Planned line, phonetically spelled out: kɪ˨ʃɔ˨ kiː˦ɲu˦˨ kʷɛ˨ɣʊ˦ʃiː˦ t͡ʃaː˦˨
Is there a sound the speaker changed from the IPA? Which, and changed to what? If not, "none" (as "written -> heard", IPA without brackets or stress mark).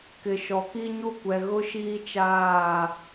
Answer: none